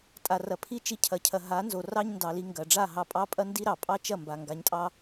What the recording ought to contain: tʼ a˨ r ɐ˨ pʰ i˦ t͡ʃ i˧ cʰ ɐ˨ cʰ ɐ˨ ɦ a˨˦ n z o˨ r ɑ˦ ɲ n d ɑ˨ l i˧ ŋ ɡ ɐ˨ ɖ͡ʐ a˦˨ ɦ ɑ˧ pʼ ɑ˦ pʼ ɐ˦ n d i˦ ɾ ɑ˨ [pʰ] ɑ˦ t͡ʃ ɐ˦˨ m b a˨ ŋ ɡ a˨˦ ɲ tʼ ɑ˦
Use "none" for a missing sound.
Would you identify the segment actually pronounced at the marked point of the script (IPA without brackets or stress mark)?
pʼ